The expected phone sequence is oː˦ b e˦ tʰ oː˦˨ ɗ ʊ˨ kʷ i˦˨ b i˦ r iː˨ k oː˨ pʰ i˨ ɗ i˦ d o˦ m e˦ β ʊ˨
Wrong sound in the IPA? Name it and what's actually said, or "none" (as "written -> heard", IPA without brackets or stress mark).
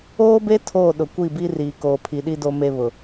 none